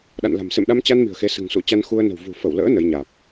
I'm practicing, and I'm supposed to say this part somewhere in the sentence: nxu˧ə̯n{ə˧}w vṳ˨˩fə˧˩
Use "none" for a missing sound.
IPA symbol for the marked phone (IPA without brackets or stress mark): ə̤˨˩